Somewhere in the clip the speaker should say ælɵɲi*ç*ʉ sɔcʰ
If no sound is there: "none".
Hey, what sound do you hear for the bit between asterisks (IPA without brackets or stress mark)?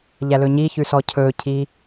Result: ç